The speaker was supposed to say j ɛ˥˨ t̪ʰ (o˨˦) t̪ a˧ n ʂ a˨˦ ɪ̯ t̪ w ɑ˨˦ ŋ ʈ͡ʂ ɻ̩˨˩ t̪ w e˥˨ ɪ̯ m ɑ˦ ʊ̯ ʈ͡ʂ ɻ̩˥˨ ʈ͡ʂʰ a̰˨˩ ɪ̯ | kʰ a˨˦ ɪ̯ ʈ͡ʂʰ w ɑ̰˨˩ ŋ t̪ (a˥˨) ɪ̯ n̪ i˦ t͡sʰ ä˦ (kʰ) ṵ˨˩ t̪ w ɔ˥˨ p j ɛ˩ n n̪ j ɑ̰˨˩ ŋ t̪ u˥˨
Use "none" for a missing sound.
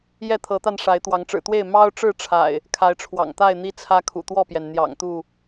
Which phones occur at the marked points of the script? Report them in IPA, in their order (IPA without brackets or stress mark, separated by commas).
ɤ˨˦, a˥˨, kʰ